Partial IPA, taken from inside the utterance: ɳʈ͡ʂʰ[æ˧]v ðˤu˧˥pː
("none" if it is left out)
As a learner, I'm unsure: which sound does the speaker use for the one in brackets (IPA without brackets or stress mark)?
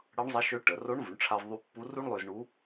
a˧